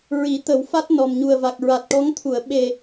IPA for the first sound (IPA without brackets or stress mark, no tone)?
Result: ɹ